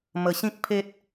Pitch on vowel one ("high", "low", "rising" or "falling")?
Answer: low